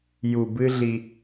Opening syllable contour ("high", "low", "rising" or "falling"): low